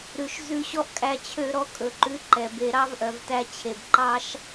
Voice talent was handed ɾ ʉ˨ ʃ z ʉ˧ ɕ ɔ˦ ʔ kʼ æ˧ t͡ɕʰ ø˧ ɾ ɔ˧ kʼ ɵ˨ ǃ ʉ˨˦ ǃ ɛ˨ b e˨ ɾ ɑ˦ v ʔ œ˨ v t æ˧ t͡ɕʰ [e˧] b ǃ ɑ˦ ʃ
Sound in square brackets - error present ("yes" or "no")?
yes